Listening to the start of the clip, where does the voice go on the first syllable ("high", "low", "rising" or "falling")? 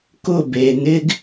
falling